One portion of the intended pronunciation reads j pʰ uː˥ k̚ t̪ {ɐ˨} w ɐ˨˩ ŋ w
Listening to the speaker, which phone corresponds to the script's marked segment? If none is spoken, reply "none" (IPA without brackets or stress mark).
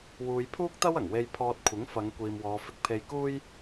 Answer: ɐ˥